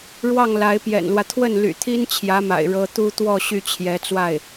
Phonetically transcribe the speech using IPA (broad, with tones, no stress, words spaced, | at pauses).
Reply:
ɻwɑ˥˩ŋla˧˥ɪ̯pjɛ̰˨˩nlwä˦ t̪ʰwə˥˩nly̰˨˩t̪ʰi˥n t͡ɕʰjä˧˥ma̰˨˩ɪ̯ ɻɤ˥ t̪u˥ t̪wɔ˥˧ ɕy˥˩t͡ɕʰjɛ˧˥t͡swa˥˩ɪ̯